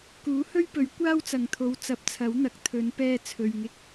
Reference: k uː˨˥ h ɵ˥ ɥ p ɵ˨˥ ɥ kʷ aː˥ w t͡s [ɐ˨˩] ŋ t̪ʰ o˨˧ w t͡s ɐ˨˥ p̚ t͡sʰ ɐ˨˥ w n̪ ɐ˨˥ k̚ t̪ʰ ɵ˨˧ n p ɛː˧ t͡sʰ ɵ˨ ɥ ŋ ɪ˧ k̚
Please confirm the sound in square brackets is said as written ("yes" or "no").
no